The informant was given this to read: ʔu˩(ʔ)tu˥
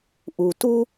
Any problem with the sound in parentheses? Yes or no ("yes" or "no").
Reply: yes